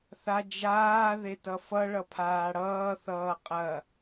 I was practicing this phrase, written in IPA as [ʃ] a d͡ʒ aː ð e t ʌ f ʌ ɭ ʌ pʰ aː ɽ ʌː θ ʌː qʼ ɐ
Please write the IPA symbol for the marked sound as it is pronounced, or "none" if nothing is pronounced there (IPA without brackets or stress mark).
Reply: θ